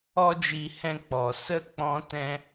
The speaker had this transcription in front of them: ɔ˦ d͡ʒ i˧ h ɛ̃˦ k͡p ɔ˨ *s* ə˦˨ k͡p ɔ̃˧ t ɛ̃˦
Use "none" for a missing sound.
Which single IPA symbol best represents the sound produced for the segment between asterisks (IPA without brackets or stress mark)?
s